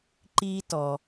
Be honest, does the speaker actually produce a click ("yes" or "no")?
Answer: yes